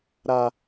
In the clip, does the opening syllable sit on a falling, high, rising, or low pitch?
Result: low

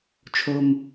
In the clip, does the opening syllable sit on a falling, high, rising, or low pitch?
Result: low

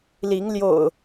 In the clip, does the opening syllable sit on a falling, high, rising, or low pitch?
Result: rising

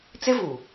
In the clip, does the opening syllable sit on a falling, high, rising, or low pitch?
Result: high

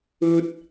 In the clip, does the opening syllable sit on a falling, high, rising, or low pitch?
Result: high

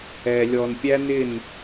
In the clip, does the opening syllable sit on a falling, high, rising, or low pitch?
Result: low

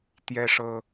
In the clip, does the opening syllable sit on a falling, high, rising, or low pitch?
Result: high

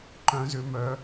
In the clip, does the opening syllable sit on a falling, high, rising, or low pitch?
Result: rising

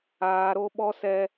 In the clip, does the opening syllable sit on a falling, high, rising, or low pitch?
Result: high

